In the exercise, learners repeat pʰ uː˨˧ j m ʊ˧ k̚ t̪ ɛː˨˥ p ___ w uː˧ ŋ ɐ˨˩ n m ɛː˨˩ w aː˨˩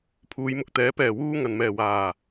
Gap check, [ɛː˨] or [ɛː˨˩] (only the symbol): ɛː˨˩